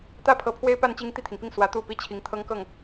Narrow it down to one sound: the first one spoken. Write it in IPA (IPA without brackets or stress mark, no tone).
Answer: t̪